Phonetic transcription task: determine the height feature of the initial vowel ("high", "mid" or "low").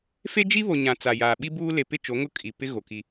mid